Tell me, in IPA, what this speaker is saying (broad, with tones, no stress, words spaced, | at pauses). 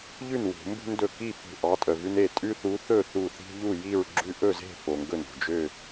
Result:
ʎʉ˥˨nwṳ˧˩˧mbṳ˦ndɵ˧˩ ki˥˨ fṳ˧˩ʔɑ˨˦ tʼœ˩vʉ˦n e˥˨ tʼʉ˦θu˨˦ θɵ˥˨ θu˧˩θi̤˦ ʎu˥˨ji˥˨ɹ ɡ͡ǁʉ˦ ʔɵ˥˨ze̤˥˨ fo˩ŋɡɵ˧˩n ṳ˧˩d͡ʒø˥˨